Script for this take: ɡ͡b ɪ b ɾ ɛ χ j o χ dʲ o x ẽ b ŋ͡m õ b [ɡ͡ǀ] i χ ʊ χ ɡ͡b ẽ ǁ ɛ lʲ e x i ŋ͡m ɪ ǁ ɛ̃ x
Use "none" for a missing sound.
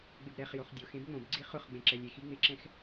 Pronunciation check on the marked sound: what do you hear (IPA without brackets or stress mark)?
ɡ͡ǀ